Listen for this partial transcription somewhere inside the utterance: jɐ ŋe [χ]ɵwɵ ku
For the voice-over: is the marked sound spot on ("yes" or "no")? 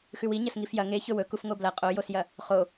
no